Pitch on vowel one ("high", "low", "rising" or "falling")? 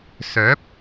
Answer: rising